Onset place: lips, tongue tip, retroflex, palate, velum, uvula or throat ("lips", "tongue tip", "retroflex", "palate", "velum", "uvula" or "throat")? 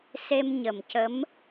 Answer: tongue tip